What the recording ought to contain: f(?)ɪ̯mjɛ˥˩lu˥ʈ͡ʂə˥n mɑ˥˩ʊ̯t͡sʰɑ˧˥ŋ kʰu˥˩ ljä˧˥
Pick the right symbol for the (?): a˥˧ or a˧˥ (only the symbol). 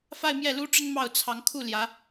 a˥˧